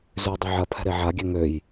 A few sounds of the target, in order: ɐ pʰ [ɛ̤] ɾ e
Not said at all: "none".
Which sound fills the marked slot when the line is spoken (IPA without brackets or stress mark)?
ɛ̤